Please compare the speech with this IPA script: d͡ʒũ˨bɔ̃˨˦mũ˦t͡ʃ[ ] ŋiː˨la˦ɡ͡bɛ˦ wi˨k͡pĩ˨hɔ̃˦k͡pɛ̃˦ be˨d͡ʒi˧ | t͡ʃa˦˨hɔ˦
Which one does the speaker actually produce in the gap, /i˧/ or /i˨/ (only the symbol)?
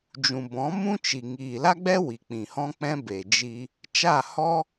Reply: i˨